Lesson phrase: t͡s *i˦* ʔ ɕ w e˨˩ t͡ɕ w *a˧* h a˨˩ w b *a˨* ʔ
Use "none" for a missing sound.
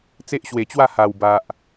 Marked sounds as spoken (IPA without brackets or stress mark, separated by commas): e˦, a˥˧, a˨